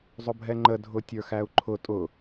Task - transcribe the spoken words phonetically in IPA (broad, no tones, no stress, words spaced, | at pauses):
zˤʊbʱɛŋ͡ǃə dʱʊtʲə˞xæu̯ǃʰʊ tʼʊ